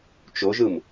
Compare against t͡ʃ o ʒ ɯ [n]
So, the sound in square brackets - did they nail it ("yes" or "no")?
no